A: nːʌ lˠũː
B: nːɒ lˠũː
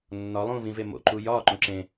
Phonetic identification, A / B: B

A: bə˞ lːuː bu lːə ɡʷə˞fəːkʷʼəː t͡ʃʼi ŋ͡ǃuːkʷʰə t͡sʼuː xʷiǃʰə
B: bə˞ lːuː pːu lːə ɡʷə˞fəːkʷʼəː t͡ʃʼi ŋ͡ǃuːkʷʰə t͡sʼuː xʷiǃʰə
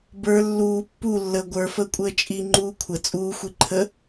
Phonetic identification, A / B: B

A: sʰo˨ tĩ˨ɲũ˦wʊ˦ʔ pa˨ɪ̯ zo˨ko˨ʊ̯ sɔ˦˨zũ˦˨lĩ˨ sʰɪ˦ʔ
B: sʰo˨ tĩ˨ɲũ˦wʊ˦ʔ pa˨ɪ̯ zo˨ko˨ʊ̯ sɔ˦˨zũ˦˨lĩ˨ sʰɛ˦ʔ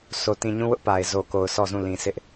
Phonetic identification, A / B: A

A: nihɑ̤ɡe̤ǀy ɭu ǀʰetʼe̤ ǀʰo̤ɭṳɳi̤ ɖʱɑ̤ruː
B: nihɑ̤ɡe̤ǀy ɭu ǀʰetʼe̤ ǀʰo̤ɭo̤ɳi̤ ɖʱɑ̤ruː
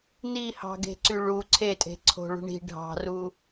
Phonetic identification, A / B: A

